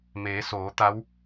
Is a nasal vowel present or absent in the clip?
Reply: absent